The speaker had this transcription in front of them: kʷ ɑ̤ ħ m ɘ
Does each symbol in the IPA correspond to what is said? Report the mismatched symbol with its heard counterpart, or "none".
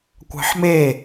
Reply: ɘ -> e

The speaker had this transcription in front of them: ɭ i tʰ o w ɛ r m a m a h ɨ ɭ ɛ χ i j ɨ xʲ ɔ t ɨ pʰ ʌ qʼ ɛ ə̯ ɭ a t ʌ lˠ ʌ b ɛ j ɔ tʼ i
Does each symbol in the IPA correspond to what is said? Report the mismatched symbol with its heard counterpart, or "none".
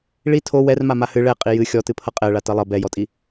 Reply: χ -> qʼ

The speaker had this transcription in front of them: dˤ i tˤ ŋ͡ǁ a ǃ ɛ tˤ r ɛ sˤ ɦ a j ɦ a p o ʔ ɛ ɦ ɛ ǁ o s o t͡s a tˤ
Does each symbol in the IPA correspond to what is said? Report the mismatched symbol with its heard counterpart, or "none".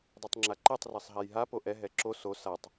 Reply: t͡s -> s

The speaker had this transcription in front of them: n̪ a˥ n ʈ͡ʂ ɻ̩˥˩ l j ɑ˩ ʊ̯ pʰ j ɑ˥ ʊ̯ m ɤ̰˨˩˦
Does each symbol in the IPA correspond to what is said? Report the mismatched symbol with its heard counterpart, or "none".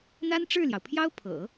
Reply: m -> pʰ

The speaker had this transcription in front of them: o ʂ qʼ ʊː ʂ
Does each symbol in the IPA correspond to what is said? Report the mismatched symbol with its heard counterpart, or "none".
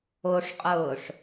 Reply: none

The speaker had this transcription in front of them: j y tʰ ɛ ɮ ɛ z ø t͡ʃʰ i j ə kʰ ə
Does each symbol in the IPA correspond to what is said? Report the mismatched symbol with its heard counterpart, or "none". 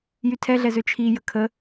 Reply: none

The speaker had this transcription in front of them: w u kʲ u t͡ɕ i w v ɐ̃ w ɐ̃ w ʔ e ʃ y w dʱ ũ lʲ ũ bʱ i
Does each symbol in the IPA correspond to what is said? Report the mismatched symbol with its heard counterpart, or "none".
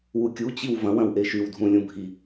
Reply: none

